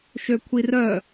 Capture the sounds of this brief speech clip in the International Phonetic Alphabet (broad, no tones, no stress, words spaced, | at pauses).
ʃøkʷʰirœ